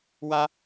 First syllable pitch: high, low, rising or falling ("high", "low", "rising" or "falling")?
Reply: high